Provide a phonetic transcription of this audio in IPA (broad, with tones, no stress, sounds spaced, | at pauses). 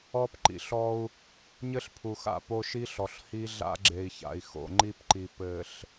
ɔ˦ p ǃ ḭ˨ ɬ ɔ˦ u̯ | ɲ ɘ˦ ɬ pʰ u˨ x a̰˦˨ p o˦ ʃ i˦ ɬ ɔ˨ ɬ h i˦ ɮ a̰˦ ɡ͡ǁ e˨ i̯ ç a̰˨ i̯ x o̰˨ ŋ͡ǃ i˦ p ǃ i˨ p ɘ˨ ɬ